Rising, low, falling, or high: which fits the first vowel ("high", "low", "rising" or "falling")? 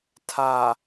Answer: low